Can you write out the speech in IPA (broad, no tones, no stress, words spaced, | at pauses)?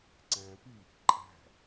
ǀæ̃pi | ǃʼæ̤